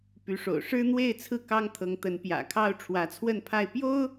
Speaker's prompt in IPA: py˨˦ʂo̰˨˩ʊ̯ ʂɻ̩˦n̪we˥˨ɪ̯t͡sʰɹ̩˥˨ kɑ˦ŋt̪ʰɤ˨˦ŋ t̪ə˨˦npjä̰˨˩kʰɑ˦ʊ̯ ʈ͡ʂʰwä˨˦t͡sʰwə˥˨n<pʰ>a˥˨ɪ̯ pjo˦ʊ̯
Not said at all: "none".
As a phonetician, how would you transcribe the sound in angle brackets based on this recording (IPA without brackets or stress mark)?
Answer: pʰ